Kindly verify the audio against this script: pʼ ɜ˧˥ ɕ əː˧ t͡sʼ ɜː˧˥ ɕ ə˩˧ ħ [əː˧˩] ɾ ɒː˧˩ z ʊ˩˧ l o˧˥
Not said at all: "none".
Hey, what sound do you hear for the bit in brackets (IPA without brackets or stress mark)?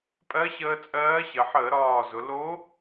əː˧˩˧